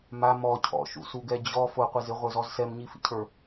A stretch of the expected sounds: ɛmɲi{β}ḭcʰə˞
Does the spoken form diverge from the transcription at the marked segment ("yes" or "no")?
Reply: yes